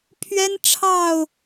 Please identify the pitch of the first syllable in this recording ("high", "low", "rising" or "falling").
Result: high